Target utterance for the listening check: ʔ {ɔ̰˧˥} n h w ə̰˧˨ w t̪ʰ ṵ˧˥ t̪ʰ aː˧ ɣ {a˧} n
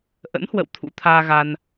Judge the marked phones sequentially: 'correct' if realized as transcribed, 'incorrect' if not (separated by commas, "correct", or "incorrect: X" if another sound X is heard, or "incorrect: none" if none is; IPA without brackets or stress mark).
incorrect: ə̰˧˥, correct